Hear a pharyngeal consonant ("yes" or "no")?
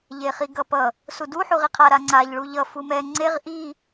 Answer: yes